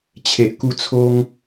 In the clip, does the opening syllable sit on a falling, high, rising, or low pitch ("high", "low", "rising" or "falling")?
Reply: low